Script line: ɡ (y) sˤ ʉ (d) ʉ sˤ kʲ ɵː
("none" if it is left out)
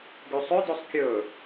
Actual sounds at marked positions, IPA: y, d

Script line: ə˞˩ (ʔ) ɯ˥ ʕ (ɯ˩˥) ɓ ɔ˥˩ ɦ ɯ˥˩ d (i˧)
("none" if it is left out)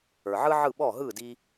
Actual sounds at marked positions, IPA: ʕ, ɯ˥˩, i˧

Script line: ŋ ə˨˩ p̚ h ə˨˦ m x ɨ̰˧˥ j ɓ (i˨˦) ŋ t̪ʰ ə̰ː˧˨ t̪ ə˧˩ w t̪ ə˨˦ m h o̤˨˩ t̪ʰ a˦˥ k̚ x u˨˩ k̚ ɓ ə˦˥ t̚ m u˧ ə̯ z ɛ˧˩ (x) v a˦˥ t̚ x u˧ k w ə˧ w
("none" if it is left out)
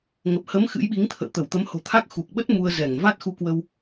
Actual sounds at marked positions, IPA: i˨˦, ŋ

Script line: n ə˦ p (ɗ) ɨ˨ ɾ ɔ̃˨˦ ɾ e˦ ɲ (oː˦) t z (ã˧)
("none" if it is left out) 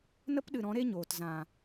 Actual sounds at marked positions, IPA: ɗ, oː˨, ã˨

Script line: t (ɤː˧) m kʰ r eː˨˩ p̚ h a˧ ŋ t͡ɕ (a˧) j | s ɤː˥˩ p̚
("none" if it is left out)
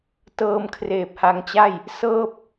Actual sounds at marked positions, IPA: ɤː˧, a˥˩

